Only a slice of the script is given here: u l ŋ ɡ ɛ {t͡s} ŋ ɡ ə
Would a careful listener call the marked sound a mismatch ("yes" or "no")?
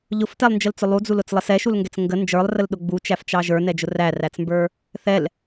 no